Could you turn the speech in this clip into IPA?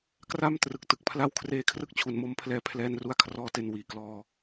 kra˥˩m trɯ˨˩k̚tɯ˨˩k̚pʰla˦˥wkʰreː˧ kʰrɯ˥˩k̚t͡ɕʰu˨˩nmo˧mpʰlɛː˧ pʰlɛː˧nru˧a̯ kʰrɔː˧te˨˩n wiː˩˦klɔː˧

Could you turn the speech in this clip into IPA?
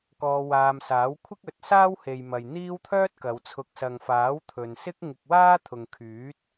kɔː˧waː˧m saː˨˥wkʷʰɪ˥k̚ɵ˨˥t̚saː˥w he˨jmɐ˨j n̪iː˥wt̪ʰœː˥t̚kɐ˨˧w t͡sʰʊ˨k̚sɐ˨ŋfaː˨˥w t̪ʰɵ˨nsɪ˥k̚ŋɪ˧k̚ waː˥t̪ʰʊ˨ŋkʰyː˨˥t̚

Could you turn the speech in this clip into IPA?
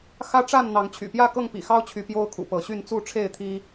xä˦ʈ͡ʂa˥˨n n̪ɑ˨˦ŋt͡ɕʰy̰˨˩pjä˥˨ kɤ˥˨ŋpḭ˨˩xɑ˦ʊ̯t͡ɕʰy˨˦ pjo˦ʊ̯kʰṵ˨˩pɤ˨˦ɕy˥˨n t͡su˥˨ʈ͡ʂʰe˥˨ɪ̯t̪ʰi˦

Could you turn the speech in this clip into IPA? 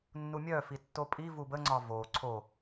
nːumʲœfi tːopʼivu bəŋ͡ǀɒ vo ǀʰo

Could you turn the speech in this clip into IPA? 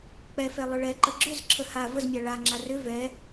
k͡pɛfɛ lˠʏɭɛǃə ɡ͡ǁʏzǁʰə ha vəzmʲa ɭaŋ͡ǁa rʏ vɛ

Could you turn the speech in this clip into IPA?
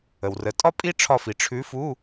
ə˩wrə˩˧˩ tʼɒ˥pʼi˥ ʈ͡ʂʰɒ˦˨fi˩ ʈ͡ʂʰʉ˨˥fu˧˥˧

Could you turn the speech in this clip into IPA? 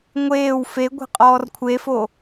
ŋʷeːw fe ɡʷe̤qʼɔːrkʷʰefo

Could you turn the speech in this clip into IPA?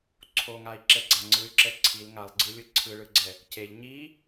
ǀʰoŋai̯ǁɛɡ͡ǀa ŋ͡ǀɯy̯ǁɛ ǀʰil ŋalˠɡ͡ǀɯlʲɯ ǀʰɯɭɯɡ͡ǀɛ | ceʎ ɲi

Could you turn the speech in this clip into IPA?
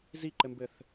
ziǃɘmbɘθ

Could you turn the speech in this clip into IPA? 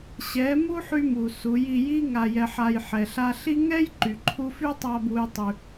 ɕɛ˨˦mu˦ħy˧mu˨ su˨˦ji˧ji˦ ŋa˧jɛ˧ħa˧j ħɛ˨ɬa˧ɬi˦ ŋɛ˦jǃy˨ǃʰu˧ fy˦tˤa˧bu˧j tˤy˧

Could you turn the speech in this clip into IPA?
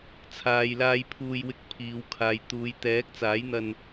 t͡sʰaː˨jlaː˧j pʰuː˧jwɪ˧k̚pʰiː˨˧wkʰaː˨j t̪uː˨jt̪ɛː˨˥k̚t͡saː˨˥jn̪ɐ˧n

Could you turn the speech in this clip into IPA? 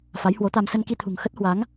fa˨˦jhwo˨˦t̪a˧m sə˧nki˧t̪ʰṳ˨˩ŋ xə˦˥t̚hwa˨˦ŋ

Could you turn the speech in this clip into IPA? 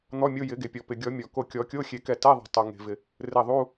n̪ɔ˧˥˧mʲo˧˥˧jɪ˨˩˦ ɡe˩pʲɔ˩pɪ˩ɡʲɔ˨˩˦ mʲɔ˩ ko˧˩kʲɔ˨˩˦ kʲo˧˥˧xʲe˨˩˦kɛ˧˩ tɛ˧˥˧ðˤɛ̤˩tˤo˩ ŋe̤˩vɪ˩ | rɪ˧˩ðˤu˧˥˧

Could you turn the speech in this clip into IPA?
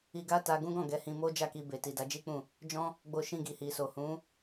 i˧ɡa˦ ta˧ɡũ˦ɡɔ̃˦˨ ɡɛ˨˦hĩ˧ mo˦d͡ʒa˦˨ki˧ be˨ti˨ da˨˦d͡ʒi˦k͡pũ˦˨ | d͡ʒɔ̃˦ | ɡ͡bo˧ʃĩ˧ ɡi˨hi˨so˨ hũ˨˦

